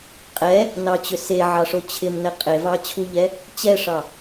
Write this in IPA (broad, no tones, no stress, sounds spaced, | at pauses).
qʼ ɛ | n ɑ t͡ɕ ʏ s e ʕ ɑ ʂ o t͡ɕʰ ɪ m n ɛ qʼ e v ɑ t͡ɕʰ u ʎ ɛ | t͡ɕ ɛ ʂ ɑ